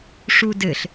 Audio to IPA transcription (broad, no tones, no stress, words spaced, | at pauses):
ʂudɘɬ